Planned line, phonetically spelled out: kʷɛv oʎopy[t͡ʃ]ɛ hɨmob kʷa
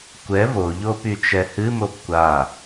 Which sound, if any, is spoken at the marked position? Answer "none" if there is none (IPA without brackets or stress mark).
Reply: t͡ʃ